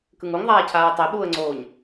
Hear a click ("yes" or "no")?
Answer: yes